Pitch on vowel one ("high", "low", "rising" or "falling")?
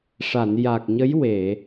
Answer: low